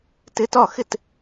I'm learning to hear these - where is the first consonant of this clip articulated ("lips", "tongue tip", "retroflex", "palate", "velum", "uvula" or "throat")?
tongue tip